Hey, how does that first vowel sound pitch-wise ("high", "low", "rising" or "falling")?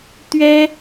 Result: high